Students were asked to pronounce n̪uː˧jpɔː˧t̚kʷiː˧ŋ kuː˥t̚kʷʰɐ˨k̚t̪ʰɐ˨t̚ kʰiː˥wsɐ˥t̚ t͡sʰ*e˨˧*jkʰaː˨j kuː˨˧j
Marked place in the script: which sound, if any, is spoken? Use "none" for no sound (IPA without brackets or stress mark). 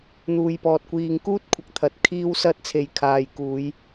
e˨˧